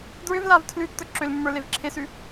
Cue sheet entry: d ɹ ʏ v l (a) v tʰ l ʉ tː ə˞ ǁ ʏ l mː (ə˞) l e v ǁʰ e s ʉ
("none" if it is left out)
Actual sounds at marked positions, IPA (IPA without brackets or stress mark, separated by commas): a, ə˞